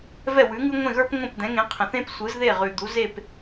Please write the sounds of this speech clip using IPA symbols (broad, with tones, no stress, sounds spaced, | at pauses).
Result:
v ɛ˥˩ w ʉ˩˥ ŋ ʉ˥ ŋʷ ẽ˥˩ ɣ ə˞˥ p ŋʷ ẽ˥˩ p d̪ ɛ̃˩˥ ŋ ẽ˩˥ qʰ ə̃˩ θ ẽ˥ p sʷ ɯ˩˥ z ð e˥˩ ʁ ʉ˩ d̪ u˩˥ z e˥˩ p